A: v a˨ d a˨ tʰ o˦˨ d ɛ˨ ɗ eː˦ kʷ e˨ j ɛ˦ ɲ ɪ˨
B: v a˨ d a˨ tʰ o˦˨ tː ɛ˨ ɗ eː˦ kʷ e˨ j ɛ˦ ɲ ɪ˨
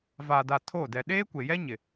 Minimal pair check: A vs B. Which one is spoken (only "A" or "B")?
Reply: A